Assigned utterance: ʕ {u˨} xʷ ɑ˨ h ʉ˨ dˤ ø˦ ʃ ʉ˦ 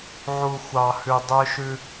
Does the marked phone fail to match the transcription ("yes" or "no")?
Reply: no